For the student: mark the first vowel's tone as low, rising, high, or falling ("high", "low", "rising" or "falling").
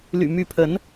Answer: low